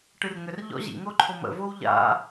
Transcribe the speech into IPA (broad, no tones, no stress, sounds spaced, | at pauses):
ʈ ɨ r ŋ ʏ r ʎ ɔ̰ ʑ ḭ ŋ o ǃʰ o m ə̰ v o w ʎ a̰